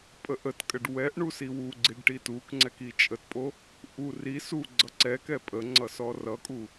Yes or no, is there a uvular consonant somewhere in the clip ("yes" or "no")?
no